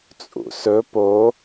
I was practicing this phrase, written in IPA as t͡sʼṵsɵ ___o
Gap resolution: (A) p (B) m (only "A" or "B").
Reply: A